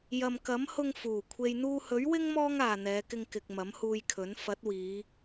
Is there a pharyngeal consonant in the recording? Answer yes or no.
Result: no